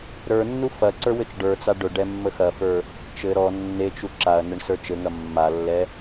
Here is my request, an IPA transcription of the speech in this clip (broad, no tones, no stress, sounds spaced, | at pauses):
ɾ ə˞ nː u f ɐ ǀ ə˞ w ɘ t͡ʃ ɖ ə˞ t͡s a ɖ ɵ ɖ ɛ mː ə x ɐ f ə˞ | t͡ʃ ɘ ɾ ɔ nː e t͡ʃ u ǁ a ɐ̯ n ɘ ɳ s ə˞ t͡ʃ ɘ ŋ ɐ mː a lː ɛ